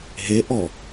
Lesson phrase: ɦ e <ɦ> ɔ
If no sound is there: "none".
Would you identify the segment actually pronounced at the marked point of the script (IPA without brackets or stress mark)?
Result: ʔ